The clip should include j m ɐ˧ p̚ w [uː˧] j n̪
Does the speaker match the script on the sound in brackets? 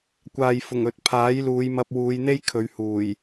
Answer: no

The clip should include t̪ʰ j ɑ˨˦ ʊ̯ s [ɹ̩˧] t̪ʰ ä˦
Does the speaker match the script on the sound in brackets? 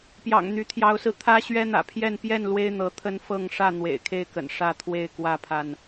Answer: yes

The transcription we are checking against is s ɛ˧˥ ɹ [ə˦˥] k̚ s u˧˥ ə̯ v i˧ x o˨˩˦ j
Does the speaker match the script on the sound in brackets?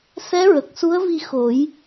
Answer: no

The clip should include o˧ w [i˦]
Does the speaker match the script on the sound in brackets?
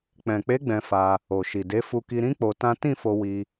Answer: no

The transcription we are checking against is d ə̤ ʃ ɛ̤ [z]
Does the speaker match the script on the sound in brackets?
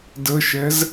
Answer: yes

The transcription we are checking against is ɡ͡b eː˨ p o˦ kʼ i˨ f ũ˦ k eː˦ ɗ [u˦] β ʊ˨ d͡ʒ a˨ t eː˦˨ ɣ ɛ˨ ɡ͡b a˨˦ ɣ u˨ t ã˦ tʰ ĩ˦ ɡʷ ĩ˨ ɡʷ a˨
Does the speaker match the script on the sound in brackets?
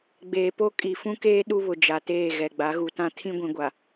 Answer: yes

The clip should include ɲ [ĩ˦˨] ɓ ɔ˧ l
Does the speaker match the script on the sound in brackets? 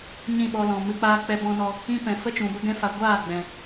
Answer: yes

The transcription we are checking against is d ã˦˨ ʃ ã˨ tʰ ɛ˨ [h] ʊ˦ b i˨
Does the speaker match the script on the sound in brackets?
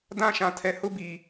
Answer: yes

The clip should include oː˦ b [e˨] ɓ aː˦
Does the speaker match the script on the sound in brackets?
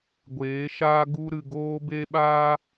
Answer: no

